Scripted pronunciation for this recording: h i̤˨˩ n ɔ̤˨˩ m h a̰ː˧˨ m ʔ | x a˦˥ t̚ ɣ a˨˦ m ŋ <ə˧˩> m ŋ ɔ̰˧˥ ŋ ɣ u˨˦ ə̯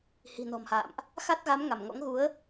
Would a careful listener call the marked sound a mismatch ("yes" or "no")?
yes